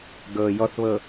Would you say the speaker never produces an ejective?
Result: yes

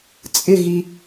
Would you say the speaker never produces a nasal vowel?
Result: yes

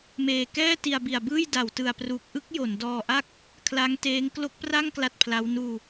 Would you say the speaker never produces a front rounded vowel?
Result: yes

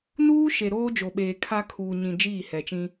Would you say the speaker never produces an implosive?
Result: no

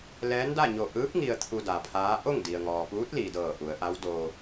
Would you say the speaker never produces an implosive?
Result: yes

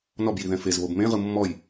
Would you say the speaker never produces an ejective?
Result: yes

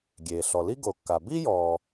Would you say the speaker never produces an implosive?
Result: yes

